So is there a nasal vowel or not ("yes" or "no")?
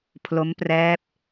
no